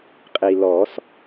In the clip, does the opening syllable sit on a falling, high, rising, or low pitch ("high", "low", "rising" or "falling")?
low